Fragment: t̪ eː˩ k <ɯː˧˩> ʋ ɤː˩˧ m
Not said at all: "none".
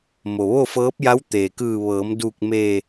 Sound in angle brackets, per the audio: ɯː˧˩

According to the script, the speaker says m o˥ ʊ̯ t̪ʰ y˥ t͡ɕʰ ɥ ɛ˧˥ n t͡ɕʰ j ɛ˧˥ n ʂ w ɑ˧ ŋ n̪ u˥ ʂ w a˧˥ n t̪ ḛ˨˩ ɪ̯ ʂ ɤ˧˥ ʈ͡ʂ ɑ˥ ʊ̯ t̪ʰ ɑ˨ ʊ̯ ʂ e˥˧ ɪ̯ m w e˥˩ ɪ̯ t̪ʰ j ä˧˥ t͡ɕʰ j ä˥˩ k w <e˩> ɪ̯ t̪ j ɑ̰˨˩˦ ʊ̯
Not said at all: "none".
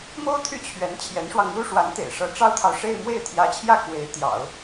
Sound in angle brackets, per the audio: e˧˥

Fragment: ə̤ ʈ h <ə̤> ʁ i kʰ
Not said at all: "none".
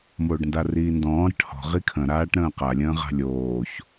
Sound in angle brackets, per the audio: ɔ̤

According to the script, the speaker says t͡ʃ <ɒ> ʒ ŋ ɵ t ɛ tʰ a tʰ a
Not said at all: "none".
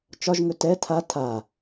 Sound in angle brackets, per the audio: ɒ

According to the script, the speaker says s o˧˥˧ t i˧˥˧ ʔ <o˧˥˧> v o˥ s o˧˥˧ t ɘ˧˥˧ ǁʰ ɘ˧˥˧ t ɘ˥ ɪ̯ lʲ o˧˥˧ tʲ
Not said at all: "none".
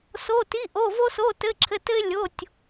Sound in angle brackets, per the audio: o˧˥˧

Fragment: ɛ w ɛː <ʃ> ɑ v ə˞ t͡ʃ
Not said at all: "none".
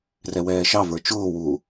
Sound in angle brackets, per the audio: ʃ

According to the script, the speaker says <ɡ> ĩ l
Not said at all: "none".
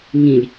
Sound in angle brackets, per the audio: ŋ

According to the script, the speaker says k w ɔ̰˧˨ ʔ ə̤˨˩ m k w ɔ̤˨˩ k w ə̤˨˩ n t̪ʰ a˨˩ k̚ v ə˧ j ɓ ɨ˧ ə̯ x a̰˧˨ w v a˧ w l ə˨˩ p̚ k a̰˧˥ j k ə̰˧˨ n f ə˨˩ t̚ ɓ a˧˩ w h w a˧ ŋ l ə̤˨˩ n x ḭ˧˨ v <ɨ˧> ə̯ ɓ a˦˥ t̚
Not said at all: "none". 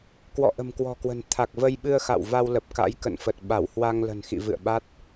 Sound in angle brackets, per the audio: ɨ̰˧˨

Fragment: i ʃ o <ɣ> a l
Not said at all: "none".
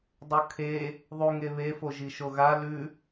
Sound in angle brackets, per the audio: ɣ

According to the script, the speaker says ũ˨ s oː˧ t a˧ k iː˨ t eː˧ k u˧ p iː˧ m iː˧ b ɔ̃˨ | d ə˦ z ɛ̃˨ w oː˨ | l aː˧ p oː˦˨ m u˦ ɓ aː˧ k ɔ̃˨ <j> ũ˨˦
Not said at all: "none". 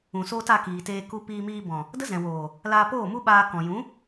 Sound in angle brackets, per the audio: j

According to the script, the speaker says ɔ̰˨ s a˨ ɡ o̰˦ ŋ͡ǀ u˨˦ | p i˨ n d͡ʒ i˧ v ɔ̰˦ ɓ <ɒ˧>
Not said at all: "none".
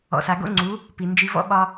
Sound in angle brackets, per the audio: ɒ˧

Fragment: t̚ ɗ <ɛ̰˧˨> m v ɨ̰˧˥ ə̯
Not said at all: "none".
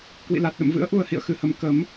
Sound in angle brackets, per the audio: ə̰˧˨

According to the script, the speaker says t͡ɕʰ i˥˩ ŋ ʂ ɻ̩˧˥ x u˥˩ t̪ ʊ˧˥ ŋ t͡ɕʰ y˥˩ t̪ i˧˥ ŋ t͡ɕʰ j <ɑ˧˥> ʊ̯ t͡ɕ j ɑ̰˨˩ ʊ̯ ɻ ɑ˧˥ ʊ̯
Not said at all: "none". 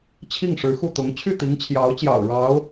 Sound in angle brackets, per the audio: ɑ˧˥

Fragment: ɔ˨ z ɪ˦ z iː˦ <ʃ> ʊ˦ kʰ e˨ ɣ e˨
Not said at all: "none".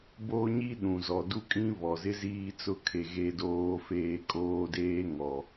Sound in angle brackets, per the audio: t͡s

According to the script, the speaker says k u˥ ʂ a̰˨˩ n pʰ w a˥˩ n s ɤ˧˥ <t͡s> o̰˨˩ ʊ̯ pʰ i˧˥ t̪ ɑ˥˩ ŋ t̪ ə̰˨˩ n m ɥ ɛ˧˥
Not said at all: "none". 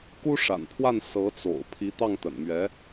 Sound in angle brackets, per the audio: t͡s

